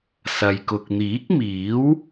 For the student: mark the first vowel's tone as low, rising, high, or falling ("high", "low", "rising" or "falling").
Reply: low